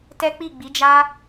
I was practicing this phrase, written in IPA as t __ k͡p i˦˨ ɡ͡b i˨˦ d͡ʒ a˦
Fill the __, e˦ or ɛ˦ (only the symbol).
ɛ˦